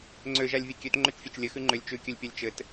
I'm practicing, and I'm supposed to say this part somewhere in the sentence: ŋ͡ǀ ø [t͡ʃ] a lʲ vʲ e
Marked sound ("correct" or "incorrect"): incorrect